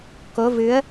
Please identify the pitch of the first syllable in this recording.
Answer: rising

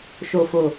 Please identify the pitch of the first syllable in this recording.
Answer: low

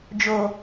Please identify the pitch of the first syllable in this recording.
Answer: low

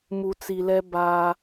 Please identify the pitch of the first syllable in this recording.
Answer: low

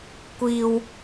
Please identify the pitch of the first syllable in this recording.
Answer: high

